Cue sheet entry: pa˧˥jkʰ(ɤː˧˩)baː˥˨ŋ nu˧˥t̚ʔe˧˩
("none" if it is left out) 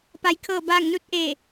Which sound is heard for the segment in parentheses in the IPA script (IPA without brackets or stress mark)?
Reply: ɤː˥˨